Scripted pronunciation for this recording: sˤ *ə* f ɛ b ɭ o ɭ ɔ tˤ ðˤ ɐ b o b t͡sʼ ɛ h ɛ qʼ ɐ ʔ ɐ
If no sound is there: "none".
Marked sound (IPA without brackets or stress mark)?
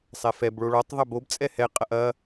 ɛ